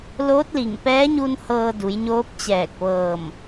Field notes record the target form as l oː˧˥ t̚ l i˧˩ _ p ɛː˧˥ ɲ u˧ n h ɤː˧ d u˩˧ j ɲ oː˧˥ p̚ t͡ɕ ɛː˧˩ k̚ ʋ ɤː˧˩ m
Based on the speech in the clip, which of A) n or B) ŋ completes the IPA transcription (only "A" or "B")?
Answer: B